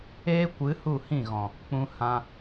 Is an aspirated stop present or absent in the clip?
absent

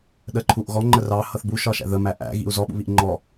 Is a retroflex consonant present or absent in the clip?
absent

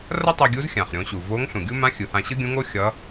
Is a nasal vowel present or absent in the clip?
present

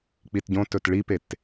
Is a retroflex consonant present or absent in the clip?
present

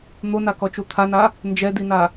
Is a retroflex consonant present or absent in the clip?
absent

